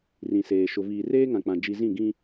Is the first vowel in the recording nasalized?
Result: yes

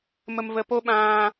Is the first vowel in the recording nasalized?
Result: no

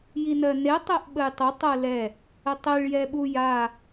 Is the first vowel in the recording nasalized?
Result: no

